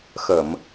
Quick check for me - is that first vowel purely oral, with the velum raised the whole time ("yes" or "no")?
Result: yes